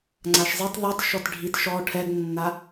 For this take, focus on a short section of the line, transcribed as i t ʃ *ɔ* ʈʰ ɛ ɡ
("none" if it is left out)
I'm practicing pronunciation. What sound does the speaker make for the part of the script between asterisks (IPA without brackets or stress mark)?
ɔ